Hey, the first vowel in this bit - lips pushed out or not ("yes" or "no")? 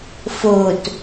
yes